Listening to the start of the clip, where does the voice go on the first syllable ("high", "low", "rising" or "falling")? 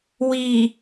low